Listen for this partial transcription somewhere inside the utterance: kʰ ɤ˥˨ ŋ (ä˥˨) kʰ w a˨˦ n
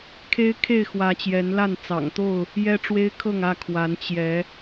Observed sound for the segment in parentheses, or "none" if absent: ä˥˨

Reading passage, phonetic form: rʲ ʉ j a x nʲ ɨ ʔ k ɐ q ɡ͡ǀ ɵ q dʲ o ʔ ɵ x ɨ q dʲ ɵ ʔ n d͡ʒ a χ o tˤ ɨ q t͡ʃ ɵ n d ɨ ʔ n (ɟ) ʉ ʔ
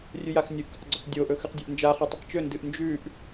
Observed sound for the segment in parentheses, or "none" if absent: d͡ʒ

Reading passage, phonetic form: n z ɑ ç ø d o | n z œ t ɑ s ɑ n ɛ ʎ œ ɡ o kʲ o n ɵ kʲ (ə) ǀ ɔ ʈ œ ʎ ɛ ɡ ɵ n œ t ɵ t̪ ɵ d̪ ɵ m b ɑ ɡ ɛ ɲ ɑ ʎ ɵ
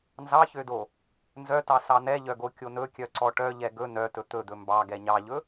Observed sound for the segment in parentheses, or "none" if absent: œ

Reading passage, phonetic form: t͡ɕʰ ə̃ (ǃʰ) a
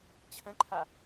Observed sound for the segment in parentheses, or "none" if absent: ǃʰ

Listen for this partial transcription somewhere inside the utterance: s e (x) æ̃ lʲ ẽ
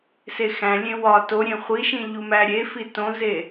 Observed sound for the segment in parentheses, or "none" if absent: x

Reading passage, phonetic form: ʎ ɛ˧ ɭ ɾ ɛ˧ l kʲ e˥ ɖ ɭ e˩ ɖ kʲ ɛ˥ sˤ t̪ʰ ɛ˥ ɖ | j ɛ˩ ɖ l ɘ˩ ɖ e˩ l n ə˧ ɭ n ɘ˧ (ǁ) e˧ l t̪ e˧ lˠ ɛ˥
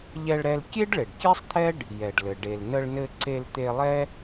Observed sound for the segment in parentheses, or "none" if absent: ǀ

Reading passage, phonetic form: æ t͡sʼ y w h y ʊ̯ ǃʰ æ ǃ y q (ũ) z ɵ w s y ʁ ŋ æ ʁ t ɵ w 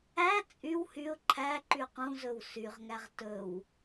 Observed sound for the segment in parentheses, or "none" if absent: ũ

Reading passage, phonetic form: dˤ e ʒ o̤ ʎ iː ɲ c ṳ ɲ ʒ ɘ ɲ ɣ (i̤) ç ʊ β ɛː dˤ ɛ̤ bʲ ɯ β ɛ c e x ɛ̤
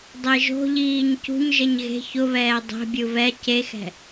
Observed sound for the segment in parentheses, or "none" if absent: e̤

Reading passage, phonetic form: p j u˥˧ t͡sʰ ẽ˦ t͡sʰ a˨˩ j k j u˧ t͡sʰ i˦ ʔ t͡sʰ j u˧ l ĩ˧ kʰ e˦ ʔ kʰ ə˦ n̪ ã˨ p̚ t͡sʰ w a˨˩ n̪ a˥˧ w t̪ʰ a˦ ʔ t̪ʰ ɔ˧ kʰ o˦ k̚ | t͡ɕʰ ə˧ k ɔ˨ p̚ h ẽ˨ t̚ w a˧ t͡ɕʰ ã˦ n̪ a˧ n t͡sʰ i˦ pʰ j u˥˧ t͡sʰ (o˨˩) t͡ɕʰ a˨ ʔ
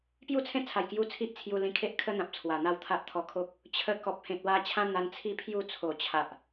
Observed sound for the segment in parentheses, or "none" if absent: o˨˩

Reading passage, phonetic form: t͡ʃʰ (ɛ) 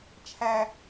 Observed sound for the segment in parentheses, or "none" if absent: æ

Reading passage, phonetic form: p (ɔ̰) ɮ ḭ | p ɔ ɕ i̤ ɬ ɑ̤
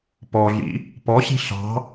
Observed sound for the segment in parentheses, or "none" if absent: ɔ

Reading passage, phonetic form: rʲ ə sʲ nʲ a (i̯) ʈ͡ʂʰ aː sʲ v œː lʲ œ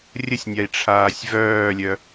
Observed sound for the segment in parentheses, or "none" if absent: i̯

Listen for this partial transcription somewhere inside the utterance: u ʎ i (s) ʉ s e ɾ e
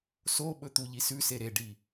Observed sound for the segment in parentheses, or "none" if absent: s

